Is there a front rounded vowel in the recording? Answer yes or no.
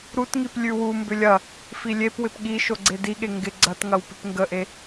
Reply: yes